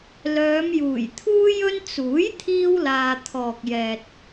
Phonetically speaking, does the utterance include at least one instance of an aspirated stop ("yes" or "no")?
yes